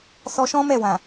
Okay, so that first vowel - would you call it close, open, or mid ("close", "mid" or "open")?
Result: mid